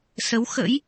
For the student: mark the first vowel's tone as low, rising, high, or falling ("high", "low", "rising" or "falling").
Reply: rising